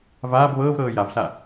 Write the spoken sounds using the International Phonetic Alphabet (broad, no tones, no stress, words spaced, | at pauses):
vaːb βɤːvɾɤː javɬa